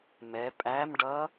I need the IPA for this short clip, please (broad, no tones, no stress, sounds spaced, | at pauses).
m ɛ pʼ æ m ɖ ʌ